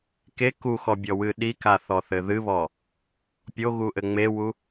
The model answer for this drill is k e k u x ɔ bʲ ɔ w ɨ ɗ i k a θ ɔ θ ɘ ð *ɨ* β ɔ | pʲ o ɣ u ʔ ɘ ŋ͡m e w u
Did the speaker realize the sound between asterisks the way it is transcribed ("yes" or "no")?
yes